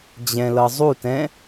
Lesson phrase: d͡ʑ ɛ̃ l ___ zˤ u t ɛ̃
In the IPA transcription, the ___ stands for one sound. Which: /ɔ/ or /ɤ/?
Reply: ɤ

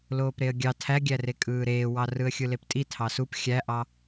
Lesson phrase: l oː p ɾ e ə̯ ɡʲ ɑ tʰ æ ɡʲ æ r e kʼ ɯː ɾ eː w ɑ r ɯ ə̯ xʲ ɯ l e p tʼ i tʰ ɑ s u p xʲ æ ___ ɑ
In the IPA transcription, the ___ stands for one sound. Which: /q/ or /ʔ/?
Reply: ʔ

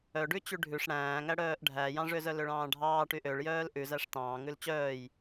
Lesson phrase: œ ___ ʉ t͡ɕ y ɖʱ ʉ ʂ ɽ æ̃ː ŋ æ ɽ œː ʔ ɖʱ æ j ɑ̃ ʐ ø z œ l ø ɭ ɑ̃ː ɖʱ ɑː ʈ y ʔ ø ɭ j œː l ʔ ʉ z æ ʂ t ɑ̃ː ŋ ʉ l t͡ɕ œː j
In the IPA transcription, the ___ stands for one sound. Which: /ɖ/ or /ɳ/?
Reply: ɖ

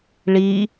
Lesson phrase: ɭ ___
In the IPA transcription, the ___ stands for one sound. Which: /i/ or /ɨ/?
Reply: i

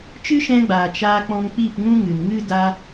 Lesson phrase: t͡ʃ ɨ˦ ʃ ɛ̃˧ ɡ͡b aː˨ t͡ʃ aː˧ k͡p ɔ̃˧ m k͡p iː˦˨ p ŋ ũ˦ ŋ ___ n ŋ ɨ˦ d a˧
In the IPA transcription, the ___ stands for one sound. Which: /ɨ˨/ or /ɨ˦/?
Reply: ɨ˨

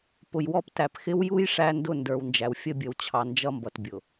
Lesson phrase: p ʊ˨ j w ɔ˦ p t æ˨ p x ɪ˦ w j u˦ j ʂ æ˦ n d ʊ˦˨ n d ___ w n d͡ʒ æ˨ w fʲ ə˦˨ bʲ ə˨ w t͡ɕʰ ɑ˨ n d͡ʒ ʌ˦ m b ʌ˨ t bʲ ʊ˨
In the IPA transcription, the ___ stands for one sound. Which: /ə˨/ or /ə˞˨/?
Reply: ə˞˨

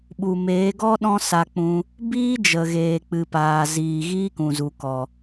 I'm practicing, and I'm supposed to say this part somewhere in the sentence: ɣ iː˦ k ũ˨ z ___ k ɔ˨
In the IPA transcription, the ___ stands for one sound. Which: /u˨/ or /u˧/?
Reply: u˨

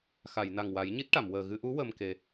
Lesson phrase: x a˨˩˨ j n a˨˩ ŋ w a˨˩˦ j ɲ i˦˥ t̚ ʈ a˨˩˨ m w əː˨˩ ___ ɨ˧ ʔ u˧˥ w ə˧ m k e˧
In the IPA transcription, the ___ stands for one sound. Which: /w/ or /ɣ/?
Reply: ɣ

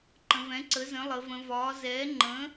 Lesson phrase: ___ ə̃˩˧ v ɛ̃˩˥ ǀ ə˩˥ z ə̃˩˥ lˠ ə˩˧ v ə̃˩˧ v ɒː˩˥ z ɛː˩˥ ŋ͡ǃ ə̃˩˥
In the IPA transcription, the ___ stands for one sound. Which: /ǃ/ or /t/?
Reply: ǃ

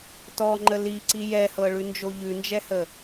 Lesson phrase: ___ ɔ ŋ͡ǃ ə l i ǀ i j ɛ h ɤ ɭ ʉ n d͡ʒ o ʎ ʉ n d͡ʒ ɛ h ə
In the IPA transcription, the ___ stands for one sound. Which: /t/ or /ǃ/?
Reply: t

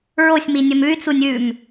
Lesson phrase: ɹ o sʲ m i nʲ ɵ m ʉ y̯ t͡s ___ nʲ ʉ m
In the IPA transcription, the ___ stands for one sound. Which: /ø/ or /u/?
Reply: u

